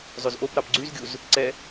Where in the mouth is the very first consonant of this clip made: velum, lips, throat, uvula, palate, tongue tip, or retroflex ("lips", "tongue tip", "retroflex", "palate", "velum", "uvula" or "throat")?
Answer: tongue tip